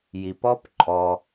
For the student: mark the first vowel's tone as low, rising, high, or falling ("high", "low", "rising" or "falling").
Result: low